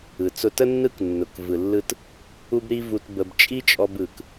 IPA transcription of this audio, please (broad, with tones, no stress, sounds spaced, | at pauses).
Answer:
ɯ˩ t͡s ʊ˧ t ə˥ nː ɯ˥ k nː ʊ˩ k v ɯ˩ lː ɯ˧ t | u˥ b ɾ i˥ v u˧ t b ə˧ b t͡ʃʼ i˥ t͡ʃʼ ɔ˧ b ɯ˩ k